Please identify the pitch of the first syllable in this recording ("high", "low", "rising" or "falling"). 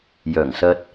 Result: low